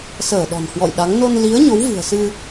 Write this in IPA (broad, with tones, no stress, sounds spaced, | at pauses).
s əː˧˩ ɗ ɔ̤˨˩ n h w ɔ̰˧˨ j ɗ a˨˦ ŋ n o˧ n l i˨˦ ə̯ ɲ o˨˦ w v ɨ̤˨˩ ə̯ s ɨ˧